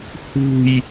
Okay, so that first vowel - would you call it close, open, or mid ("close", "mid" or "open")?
close